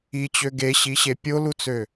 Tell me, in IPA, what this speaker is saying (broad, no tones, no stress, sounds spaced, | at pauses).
i t͡ɕ ø ɡ e ɕ i ɕ e pʲ o l u t͡s ø